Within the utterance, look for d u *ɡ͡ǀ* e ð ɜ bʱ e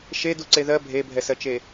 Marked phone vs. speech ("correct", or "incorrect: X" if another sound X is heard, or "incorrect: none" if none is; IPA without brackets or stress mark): incorrect: ǀ